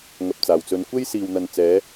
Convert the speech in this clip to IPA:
ŋ ɐ˧ p̚ t͡s aː˨ w t͡s ɵ˧ n kʷ e˥ j s iː˨ w n̪ ɐ˨ n t͡s ɛː˨˥

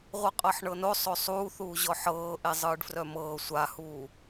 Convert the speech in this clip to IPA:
ʁʷ ɯ qʼ ɤ ħ ɳ ɤ n o sˤ o sˤ uː θ uː ʑ ɔ ħ ɤː ʔ e zˤ ɯː ɖ f r œ m ɤː sʷ a h uː

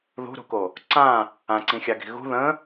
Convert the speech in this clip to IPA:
ð ṳ ɾ ṳ k o | ǀ ã | ã ǀ ĩ xʲ a ɡ i̤ ɣ ṳ ð ə̃

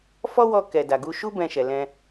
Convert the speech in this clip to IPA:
f ɔ˦ w ɔ˧ k ɛ˨ d a˨ ɡ u˧ ʃ u˦ b ɛ̃˧ ʃ ɛ˨ l ɛ̃˧

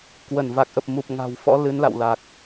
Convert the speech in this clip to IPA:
k w ə˧˩ n v a˨˩ k̚ ʔ ə˨˩ p̚ m u˨˩ p̚ ŋ a̤˨˩ w f ɔ̰˧˥ l ɨ˨˦ n l a̰˧˨ w l a˨˩ k̚

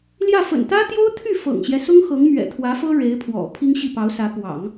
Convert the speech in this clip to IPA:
l j ä˥˩ f ə̰˨˩ n t̪ ä˥ t̪ j o˥ ʊ̯ t̪ʰ y˥˩ f ɤ̰˨˩ ŋ ɕ j ɛ˦ s ʊ˥ ŋ x ɤ˧˥ ŋ m ɥ ɛ̰˨˩ t̪ʰ w ä˧˥ f ɤ˥ ɻ e˧˥ ɪ̯ pʰ w ɔ̰˨˩ pʰ i˥ ŋ ɕ i˥˩ p ɑ˧˥ ʊ̯ s ä˧˥ p w ɑ̰˨˩˦ ŋ

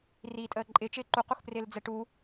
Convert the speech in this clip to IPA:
r iː tʼ əː ǃʼ ɪ t͡ʃ ɪː ǃ u q u x p r ɪː l d͡z ɛ ʈ u

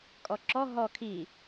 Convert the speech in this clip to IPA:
kʼ ɔ ǁ ɔ ɦ ɔ kʰ i

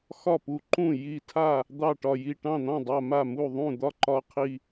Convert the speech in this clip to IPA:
x ɒ˥˩ p u˧˩ ǃ ũ˥˩ j i˧˩ tʰ a˥˩ | d̪ ɑ˥˩ ʈ ɒ˧˩ j i˧˩ ʈ ɑ̃˥˩ n̪ ɑ̃˥˩ dˤ a˧˩ m a˥˩ m u˥˩ ðˤ ũ˥˩ d̪ ɒ˥˩ ǃ ɒ˧˩ qʰ i˧˩

